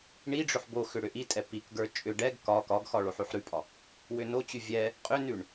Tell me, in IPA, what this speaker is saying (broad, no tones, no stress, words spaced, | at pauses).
ɳiɖ͡ʐʏħ boxʏ ɽʏʔitʼɛ pikɡə˞ t͡ʃʼʏ ɖɛɡ kɒ kɒɡxɒ ɭoħʉħɾʉpʼɒ | wʏnot͡ɕʉ vʲɛ | qʼʏnʉɳ